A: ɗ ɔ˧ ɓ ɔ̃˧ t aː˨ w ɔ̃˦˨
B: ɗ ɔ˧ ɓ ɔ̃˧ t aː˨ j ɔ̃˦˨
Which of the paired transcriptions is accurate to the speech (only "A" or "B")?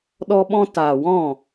A